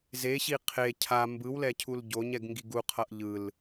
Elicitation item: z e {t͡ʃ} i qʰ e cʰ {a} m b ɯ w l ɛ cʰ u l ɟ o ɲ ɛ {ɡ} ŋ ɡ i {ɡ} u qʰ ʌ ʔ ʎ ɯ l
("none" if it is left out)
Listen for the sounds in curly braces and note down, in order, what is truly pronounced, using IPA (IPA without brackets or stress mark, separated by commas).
ɕ, a, ɡ, ɡ